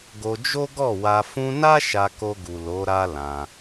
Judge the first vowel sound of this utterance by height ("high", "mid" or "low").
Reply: mid